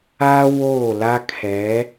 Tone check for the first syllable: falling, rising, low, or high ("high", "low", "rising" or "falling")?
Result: high